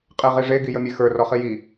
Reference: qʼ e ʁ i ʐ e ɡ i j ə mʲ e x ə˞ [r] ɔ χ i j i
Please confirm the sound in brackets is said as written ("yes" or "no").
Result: yes